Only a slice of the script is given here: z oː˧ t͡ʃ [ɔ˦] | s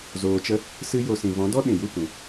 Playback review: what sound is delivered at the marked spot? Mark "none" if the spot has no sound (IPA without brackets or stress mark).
ə˦